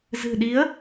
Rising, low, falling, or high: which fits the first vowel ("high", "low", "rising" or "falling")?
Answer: low